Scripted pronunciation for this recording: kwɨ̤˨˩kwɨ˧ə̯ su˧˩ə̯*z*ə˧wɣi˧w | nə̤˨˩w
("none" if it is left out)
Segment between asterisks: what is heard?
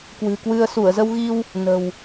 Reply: z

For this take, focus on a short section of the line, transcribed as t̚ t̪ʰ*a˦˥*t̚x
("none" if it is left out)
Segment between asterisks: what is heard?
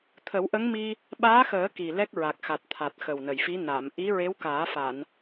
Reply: a˨˩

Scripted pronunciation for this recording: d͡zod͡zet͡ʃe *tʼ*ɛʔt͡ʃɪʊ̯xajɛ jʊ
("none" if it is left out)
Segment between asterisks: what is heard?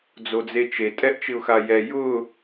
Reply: tʼ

